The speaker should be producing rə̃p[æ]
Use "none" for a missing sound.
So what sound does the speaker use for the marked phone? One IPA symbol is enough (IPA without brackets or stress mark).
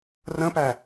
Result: æ